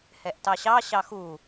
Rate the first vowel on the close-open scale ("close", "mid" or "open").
mid